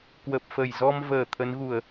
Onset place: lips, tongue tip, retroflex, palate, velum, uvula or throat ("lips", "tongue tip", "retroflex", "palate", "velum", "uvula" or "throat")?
velum